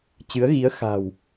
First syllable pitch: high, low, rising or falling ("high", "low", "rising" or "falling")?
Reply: rising